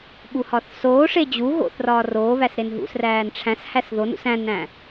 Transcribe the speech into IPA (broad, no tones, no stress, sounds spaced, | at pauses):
ɓ u h ɒ θ s oː ʂ e d͡ʑ u ɣ o̰ θ r ɒː r oː β æ s ɾ e n ɦ ṵ s r æː n ʈ͡ʂʰ æ̃ s h æ s ð o n ṵ s æ̃ n æ̃